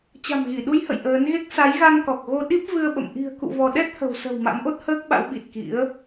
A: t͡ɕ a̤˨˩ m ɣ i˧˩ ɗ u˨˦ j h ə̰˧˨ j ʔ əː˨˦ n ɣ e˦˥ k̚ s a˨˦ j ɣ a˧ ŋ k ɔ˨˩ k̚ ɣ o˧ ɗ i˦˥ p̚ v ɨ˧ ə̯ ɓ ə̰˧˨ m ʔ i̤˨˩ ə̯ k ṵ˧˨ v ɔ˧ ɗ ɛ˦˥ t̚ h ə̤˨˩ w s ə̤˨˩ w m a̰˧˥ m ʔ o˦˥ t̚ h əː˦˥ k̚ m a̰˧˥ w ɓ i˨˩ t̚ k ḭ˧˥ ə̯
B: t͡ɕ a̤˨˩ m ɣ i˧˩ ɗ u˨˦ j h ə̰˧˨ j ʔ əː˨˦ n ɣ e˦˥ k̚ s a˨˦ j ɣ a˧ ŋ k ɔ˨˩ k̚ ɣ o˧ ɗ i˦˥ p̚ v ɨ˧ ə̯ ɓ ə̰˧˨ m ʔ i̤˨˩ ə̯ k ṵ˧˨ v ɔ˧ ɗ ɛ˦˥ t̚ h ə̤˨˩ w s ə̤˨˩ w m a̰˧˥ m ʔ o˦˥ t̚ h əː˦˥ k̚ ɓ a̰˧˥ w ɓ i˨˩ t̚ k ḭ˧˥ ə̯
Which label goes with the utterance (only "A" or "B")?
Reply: B